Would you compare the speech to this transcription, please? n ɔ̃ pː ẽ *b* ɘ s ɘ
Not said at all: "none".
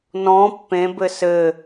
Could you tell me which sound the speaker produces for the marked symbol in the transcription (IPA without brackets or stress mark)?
b